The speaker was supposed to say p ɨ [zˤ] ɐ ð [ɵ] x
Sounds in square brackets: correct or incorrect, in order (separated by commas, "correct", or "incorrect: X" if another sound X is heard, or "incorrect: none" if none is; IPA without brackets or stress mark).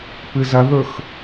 incorrect: z, correct